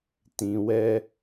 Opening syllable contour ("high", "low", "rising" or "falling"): low